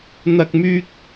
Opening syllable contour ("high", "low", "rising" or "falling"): high